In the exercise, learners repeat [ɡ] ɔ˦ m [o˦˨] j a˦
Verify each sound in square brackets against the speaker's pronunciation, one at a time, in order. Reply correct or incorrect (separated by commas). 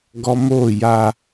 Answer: correct, correct